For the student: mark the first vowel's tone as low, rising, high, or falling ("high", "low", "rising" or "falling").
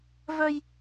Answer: high